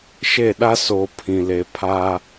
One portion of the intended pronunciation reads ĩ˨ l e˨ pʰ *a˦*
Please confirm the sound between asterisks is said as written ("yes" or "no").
yes